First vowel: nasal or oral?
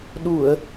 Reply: oral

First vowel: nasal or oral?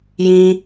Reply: nasal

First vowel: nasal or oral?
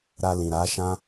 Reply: oral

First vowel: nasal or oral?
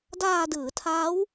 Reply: oral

